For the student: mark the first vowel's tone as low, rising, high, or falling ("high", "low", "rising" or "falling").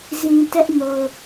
low